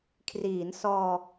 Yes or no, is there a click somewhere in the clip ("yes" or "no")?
no